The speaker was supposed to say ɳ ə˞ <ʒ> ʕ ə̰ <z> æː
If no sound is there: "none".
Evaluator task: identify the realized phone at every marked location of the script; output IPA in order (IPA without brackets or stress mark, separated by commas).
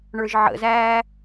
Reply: ʒ, z